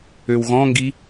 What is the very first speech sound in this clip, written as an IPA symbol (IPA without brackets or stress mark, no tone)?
ø